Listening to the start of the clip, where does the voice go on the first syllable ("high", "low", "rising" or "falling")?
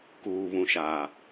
low